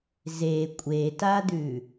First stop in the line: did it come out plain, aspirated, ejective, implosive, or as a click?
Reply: ejective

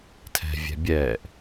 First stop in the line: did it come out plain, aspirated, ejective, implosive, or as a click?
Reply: aspirated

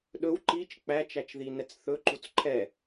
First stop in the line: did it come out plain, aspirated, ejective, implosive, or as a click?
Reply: implosive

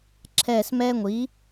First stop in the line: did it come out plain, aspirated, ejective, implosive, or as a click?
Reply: click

